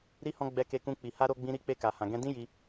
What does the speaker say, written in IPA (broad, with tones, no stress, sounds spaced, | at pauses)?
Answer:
ɾ i˧ h ɔ̃˧ ɡ͡b ɛ˧ k e˧ k ũ˧ k͡p i˨ h a˧ ɾ o˧ ɡ͡b ĩ˧ ɾ i˧ k͡p e˧ k a˨ h ã˨ ɡ ɛ̃˧ d ĩ˦ j i˧